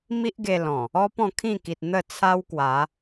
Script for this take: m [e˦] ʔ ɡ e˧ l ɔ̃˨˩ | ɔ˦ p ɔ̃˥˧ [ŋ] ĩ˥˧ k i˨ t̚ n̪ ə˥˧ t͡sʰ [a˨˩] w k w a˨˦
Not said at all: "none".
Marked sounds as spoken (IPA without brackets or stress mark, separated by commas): i˦, kʰ, a˦